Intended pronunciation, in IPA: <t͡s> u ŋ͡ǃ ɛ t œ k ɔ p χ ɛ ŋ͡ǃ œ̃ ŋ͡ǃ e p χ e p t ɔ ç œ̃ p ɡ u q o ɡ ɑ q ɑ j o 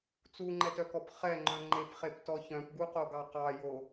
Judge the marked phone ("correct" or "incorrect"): correct